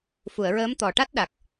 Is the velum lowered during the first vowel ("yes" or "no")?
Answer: no